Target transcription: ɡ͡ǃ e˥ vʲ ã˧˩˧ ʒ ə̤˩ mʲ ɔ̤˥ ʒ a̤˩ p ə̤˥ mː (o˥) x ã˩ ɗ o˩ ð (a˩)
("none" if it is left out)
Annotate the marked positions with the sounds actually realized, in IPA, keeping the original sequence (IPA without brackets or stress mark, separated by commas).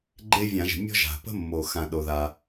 o˩, a˩